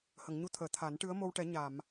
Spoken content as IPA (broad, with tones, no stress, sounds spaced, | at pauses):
h ə˨˩˨ ŋ ɲ u˧ t̪ʰ əː˨˩˨ t̪ʰ a˨˩˦ n ʈ ɨ˧˥ ə̯ m o˧ w ʈ ɛ˨˩˦ ɲ a˨˩˨ m